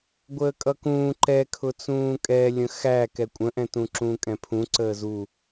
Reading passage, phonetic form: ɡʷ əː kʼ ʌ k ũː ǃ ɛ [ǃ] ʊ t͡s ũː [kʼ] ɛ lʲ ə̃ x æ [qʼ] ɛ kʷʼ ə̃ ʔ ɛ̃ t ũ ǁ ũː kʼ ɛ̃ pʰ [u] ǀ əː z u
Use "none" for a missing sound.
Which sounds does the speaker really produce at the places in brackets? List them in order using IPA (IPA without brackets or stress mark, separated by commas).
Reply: kʰ, kʼ, k, ũ